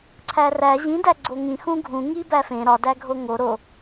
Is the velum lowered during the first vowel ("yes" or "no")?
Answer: no